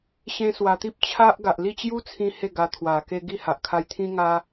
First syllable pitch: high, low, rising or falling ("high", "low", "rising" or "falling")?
high